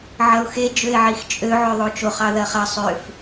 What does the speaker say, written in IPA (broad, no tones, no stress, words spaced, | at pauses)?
ʕɐʊ̯xe d͡ʒøɪ̯ʕixt͡ʃʼø ʕøðˤot͡ʃoχ ɑðɐχɐ sˤøf